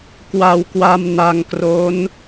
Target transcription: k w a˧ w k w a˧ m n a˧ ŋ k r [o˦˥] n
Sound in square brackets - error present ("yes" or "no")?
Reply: no